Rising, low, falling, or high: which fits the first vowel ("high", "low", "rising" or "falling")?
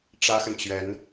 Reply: high